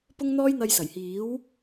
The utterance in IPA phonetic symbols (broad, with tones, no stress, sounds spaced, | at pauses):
p ʊ˥ ŋ n̪ ɔː˥ j n̪ ɐ˧ j s ɐ˨˩ j h iː˨˥ w